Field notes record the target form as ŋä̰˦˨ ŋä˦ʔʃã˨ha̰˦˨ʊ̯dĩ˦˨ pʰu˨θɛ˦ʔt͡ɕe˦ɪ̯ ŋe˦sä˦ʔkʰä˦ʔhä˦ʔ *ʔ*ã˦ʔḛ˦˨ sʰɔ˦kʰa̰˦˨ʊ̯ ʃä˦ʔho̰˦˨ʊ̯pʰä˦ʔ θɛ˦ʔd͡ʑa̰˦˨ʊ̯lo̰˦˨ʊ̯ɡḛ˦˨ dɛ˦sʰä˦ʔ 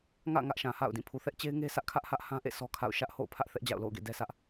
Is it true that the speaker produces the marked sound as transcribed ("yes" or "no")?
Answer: no